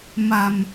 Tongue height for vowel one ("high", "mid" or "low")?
low